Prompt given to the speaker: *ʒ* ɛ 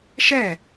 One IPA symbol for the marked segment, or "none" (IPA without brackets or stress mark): ʃ